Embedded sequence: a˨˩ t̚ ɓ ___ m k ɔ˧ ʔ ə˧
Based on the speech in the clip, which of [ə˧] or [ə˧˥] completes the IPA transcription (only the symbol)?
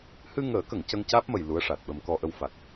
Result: ə˧